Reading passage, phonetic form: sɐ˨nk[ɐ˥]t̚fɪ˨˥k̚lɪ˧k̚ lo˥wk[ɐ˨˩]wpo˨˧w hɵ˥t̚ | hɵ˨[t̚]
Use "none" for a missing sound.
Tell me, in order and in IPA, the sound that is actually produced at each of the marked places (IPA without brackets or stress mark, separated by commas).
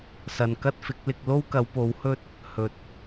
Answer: ɐ˥, ɐ˨˧, t̚